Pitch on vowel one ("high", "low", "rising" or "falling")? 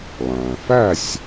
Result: low